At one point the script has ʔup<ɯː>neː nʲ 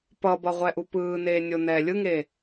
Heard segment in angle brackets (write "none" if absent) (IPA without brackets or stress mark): ɯː